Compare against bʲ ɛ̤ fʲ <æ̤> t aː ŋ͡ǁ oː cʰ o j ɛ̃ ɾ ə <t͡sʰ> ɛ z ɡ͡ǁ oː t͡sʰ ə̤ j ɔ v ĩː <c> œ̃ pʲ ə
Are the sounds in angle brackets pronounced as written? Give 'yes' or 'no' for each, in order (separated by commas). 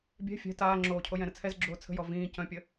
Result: no, yes, yes